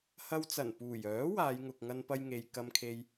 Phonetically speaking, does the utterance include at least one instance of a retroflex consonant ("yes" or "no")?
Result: no